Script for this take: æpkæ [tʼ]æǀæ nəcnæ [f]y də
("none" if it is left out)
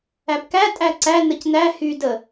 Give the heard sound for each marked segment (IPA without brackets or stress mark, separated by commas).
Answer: tʼ, h